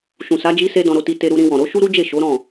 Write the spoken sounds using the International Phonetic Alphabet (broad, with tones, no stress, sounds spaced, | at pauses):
ʃ ũ˨ s a˨˦ d͡ʒ i˧ s e˧ d ɔ̃˧ ɾ o˧ t i˧ t e˧ ɾ u˧ ɾ ĩ˧ w ɔ̃˨ ɾ o˨˦ ʃ u˦ ɾ u˦ d͡ʒ e˦˨ ʃ o˨˦ ɾ ɔ̃˦˨